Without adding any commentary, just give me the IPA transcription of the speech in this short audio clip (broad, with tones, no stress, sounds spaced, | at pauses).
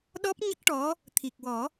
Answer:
ɗ ɔ˦˥ p̚ ɲ ə˦˥ k̚ ʈ ɔ˧˥ | t̪ʰ i˨˩ k̚ w ɔ˨˩˦